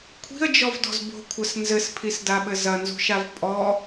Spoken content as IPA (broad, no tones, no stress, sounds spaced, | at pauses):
kʷʰ i̤ ə̯ d͡ʒ ɔ v d ɔ̤ z b o̤ kʷʰ ɐ s n z ɘ s pʰ i s d a ɓ ɘ z ɐ n z ṳ ʃ a v pʼ ɔ